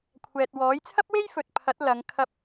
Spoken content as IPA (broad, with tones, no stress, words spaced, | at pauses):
kʷʰɛː˨t̚wɔː˨˥j t͡sʰɐ˥p̚we˥jfɵ˨t̚ pʰɐ˨˥t̚lɐ˨˧ŋ kʰɐ˧p̚